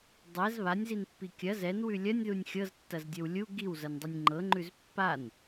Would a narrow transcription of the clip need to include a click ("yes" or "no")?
yes